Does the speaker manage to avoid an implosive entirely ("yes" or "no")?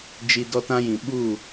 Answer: no